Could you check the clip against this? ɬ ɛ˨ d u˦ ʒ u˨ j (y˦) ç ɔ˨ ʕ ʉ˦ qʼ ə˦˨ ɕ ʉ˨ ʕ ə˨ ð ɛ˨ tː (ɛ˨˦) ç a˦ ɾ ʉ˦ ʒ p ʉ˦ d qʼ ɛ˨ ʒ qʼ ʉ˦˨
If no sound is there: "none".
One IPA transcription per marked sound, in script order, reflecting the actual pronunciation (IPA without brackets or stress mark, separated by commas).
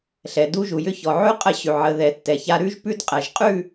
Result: ʏ˦, ɛ˨